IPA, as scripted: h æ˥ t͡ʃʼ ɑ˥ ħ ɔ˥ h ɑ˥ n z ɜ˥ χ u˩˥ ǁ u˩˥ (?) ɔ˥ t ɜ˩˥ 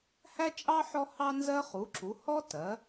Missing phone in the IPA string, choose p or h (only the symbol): h